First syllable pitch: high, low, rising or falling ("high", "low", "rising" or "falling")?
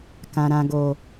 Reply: low